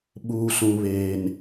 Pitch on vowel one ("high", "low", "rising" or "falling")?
low